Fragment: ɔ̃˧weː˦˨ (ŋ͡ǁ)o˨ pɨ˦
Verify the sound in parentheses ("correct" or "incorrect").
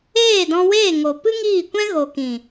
incorrect